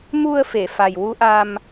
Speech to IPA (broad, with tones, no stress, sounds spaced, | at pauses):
m u˧ ə̯ f e˨˩˨ f a˨˩ j w u˧˥ ʔ a˧ m